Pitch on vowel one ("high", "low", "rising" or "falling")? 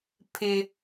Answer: high